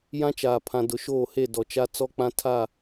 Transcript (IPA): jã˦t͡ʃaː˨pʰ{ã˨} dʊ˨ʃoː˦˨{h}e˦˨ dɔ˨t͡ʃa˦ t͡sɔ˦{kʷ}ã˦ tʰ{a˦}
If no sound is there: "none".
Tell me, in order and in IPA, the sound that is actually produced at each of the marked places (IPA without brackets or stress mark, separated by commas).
ã˨, h, k͡p, a˦˨